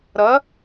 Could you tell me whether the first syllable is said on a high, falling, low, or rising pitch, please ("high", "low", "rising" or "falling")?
rising